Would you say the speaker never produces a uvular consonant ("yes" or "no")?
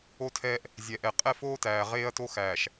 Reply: no